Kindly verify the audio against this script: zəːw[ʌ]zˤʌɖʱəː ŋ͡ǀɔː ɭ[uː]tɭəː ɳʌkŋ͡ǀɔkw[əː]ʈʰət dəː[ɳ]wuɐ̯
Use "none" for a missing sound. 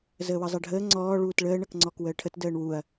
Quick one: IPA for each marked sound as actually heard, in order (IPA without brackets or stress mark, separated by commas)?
ʌ, uː, əː, ɳ